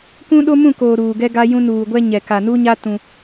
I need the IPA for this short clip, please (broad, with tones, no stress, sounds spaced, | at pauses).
k ũ˦ ɗ o˦ m ũ˦˨ k oː˨ ɾ uː˨ ɡ ɛ˦ ɡ a˦ j ũ˦ n uː˨ ɡʷ ɛ˦ ɲ ɛ˨ k a˨ n u˦ ɲ a˦ t ũ˦